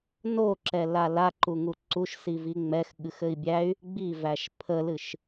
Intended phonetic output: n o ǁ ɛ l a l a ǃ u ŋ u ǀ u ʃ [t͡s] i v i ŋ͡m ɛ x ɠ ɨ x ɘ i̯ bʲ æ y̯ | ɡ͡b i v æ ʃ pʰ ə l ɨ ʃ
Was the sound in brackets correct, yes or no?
no